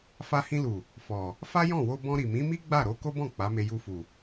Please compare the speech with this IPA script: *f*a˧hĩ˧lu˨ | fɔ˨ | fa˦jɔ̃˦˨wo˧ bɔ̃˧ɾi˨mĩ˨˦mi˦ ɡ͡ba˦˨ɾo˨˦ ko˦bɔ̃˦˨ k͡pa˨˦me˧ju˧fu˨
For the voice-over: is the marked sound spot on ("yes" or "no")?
yes